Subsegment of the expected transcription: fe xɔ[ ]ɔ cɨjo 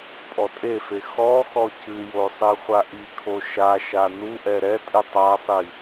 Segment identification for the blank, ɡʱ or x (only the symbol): x